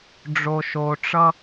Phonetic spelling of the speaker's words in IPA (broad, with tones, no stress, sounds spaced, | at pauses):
ɖ͡ʐ o˩ ʃ o˩ ʈ͡ʂ ʌ˧